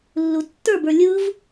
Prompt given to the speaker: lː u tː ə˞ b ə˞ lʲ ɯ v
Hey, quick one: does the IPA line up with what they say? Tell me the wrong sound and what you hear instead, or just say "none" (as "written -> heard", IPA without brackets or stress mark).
none